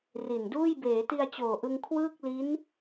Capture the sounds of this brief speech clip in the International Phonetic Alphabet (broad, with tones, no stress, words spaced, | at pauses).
ri˨˩nduː˥˩j beː˩˦ti˧a̯t͡ɕoː˨˩ʔɯ˧ŋ kʰwɯː˥˩k̚li˦˥n